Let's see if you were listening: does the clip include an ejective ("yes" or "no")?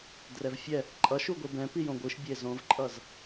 yes